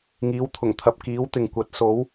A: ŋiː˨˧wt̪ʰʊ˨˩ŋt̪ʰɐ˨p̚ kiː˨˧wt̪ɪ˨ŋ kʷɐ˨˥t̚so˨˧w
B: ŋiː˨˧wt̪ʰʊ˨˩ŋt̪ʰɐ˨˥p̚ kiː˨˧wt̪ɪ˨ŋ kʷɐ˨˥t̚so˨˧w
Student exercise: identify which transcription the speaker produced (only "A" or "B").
A